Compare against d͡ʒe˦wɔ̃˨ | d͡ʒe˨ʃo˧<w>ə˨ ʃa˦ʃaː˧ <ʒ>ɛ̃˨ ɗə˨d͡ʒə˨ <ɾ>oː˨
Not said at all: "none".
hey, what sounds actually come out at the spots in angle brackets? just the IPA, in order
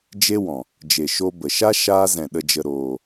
b, z, ɾ

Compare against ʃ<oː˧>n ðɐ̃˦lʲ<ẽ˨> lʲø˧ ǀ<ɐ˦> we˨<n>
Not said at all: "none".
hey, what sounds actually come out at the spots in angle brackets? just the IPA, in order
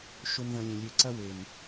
o˧, ẽ˧, ɐ˦, n

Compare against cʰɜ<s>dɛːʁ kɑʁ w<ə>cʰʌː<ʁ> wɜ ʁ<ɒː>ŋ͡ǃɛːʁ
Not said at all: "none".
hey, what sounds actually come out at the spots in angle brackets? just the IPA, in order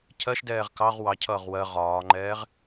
ʃ, ɑ, ʁ, ɒː

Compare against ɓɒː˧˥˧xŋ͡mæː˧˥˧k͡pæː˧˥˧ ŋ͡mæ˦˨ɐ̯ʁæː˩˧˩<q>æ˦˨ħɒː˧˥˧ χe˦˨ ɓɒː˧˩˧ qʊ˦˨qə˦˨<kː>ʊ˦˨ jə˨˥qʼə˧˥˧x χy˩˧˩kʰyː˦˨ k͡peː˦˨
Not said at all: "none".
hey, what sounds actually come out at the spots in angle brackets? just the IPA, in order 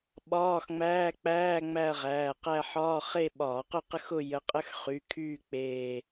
q, x

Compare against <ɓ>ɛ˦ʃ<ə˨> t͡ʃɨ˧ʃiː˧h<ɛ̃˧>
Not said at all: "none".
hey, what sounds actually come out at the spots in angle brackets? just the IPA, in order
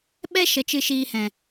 ɓ, ə˨, ɛ̃˨

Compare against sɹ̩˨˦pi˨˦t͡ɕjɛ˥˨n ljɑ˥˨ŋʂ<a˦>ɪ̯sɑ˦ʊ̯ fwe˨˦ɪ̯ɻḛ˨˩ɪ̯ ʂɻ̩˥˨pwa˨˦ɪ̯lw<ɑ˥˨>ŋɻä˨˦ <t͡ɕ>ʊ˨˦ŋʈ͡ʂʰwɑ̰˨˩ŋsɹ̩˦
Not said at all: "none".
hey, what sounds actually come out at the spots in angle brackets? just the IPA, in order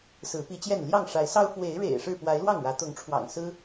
a˨˦, ɑ˥˨, t̪

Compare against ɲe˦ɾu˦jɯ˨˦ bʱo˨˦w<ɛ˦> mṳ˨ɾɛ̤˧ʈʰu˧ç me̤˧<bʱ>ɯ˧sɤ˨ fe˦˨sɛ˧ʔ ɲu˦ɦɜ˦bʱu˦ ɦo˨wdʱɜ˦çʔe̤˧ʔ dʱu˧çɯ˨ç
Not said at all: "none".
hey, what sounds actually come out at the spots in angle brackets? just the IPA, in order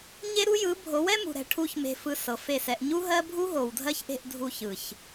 ɛ˦, f

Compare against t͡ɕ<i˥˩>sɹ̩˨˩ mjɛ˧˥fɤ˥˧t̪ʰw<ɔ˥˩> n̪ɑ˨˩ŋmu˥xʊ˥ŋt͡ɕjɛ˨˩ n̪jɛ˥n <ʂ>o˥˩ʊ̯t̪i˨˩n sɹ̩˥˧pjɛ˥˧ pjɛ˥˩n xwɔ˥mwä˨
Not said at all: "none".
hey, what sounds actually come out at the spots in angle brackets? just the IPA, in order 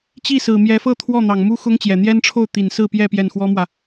i˥˩, ɔ˥˩, ʈ͡ʂʰ

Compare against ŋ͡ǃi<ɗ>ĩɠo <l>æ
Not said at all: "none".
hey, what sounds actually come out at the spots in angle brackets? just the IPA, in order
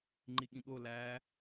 ɠ, l

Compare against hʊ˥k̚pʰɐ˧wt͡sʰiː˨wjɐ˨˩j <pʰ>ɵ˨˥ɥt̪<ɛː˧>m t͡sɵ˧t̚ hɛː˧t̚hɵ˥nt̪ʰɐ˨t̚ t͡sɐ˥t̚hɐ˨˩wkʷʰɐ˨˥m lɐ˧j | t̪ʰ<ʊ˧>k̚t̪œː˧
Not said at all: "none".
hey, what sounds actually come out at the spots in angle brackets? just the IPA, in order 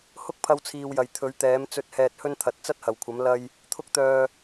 t̪ʰ, ɛː˨˥, ʊ˥

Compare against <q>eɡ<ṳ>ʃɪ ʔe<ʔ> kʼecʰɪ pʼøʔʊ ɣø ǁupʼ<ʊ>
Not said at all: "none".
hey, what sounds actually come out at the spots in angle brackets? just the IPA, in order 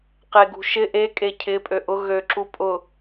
q, ṳ, none, ʊ

